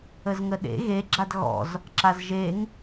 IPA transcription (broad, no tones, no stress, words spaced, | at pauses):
əzŋəɗḛ ɣeɡ͡ǁad ɣɔ̰z | ǁazʒeŋ